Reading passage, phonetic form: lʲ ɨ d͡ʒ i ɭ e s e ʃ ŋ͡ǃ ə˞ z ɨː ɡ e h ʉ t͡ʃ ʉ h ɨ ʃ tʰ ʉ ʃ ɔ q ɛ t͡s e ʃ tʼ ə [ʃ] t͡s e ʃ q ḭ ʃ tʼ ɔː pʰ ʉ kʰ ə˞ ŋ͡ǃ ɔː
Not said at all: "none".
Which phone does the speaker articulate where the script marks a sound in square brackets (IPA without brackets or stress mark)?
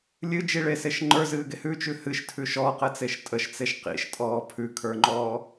ʃ